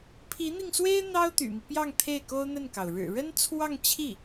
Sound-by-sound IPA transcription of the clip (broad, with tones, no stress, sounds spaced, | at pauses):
pʰ i˧˥ n̪ i˧ ŋ s w e˥ ɪ̯ n̪ ɑ˥ ʊ̯ t̪ y̰˨˩ m i˦ p j ɑ˥˧ ŋ t̪ʰ e˥˩ ɪ̯ k o˥ ʊ̯ n̪ ə˥˩ n k ɑ˩ ʊ̯ ɻ ɻ̩˨˩ ɻ ə˥ n t͡sʰ w ɑ˥˧ ŋ t͡ɕʰ i˥˩